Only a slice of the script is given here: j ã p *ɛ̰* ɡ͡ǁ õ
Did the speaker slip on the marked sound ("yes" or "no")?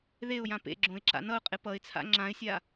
yes